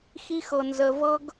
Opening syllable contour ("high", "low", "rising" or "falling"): high